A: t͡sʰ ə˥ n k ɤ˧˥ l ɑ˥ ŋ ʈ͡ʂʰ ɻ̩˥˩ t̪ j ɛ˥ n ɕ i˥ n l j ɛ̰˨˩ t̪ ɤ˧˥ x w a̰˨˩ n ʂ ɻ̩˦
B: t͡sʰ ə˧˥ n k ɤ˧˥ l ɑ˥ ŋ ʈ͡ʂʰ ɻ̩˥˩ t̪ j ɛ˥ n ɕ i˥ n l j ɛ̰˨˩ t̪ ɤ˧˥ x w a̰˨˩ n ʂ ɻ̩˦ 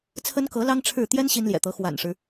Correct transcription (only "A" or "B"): A